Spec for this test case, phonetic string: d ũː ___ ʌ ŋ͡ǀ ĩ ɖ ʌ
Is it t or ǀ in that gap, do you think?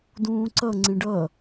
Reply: ǀ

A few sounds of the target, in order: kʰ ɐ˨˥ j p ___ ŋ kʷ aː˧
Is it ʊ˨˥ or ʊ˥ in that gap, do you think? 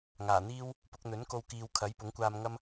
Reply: ʊ˨˥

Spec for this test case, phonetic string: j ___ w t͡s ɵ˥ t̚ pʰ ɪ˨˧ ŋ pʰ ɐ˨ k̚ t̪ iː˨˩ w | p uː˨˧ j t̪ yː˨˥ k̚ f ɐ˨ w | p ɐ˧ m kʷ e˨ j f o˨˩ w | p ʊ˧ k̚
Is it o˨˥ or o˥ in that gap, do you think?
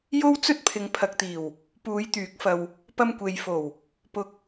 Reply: o˥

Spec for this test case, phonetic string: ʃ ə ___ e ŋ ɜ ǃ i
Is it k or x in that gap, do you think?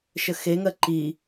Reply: x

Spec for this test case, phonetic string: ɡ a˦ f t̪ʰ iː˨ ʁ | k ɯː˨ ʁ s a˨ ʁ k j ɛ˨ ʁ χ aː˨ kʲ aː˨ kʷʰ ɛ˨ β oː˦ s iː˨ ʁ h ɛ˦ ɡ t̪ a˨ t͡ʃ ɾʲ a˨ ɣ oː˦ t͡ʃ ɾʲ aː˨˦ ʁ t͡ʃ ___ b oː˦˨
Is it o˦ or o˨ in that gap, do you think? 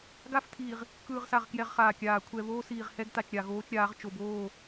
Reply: o˨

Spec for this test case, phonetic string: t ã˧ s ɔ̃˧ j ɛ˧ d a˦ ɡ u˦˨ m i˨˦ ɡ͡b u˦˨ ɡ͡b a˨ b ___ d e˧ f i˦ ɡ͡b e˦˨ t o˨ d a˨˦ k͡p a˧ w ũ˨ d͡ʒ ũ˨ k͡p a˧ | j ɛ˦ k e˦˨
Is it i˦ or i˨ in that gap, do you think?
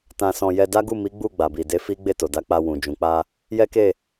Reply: i˨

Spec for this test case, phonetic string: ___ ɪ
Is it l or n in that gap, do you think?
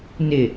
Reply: n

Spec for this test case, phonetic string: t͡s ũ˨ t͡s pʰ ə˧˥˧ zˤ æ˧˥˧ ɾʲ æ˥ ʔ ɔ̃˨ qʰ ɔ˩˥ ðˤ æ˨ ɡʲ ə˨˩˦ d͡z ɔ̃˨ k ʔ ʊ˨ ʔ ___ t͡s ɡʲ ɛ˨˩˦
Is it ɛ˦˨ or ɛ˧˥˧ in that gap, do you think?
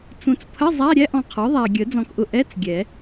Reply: ɛ˧˥˧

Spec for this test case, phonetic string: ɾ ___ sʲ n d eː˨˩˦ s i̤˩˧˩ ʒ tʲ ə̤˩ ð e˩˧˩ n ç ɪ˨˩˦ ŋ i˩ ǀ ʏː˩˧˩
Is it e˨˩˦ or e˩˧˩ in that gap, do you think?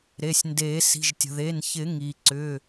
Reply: e˩˧˩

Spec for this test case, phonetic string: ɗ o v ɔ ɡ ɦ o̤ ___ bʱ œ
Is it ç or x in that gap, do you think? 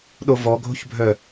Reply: ç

